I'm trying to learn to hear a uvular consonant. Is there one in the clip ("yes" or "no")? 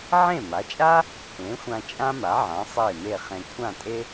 yes